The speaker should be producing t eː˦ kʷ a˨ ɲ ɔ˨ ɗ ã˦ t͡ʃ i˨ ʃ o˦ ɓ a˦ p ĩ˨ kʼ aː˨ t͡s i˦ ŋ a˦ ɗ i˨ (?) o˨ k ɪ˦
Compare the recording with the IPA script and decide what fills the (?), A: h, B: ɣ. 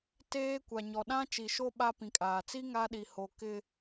A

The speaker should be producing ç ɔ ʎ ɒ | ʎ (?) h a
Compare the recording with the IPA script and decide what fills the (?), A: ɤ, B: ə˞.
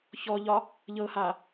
A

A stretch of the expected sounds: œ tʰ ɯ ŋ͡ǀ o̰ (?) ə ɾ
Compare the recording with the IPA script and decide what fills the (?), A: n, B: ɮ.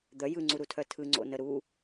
A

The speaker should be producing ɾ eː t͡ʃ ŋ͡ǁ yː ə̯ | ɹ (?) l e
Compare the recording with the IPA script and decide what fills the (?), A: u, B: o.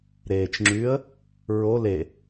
B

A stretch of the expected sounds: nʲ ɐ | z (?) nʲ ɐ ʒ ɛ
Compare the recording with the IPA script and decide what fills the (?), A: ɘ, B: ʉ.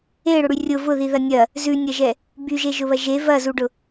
B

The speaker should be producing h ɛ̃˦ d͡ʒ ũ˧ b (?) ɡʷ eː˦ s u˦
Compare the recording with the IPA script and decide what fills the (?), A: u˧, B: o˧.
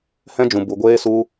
A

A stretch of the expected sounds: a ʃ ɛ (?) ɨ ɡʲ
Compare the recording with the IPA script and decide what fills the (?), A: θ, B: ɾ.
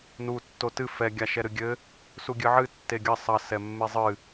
B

